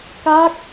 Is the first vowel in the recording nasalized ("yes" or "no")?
no